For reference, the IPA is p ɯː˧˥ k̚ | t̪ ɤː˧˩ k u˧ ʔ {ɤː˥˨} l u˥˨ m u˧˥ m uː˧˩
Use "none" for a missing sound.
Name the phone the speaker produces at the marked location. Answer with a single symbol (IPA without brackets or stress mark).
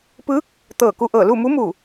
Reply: ɤː˧˩